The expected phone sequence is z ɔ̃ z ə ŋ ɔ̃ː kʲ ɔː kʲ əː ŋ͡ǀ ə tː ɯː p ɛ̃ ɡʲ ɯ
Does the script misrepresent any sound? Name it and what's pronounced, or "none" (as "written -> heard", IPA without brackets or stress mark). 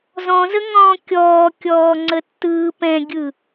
əː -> ɔː